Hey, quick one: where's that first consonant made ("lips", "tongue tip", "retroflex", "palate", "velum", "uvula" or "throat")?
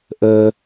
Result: throat